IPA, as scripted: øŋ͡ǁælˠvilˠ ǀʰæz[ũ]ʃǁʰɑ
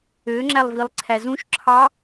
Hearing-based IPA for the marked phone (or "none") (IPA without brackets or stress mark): ũ